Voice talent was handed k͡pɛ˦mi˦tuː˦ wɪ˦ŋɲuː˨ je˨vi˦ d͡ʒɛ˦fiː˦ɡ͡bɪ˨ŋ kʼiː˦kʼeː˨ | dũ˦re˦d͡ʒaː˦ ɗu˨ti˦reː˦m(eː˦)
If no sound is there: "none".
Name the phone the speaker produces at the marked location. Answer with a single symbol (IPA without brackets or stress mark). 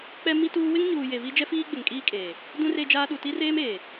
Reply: eː˨